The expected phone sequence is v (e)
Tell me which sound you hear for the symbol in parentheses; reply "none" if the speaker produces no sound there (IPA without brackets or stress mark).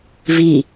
i